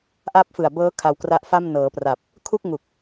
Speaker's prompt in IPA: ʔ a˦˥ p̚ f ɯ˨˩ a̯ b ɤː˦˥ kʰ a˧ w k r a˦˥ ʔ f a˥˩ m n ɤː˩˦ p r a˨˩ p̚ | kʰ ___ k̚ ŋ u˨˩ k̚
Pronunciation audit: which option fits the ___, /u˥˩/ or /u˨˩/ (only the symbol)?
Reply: u˥˩